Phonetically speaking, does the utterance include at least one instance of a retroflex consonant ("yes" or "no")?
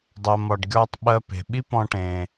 yes